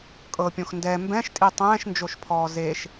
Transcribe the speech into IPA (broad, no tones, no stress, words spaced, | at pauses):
kʼɤpʲõx ndɛ mbɛ̃ʃtʼi tˤɛ̃ːʃnd͡ʒoʃpʰɔː zeʃ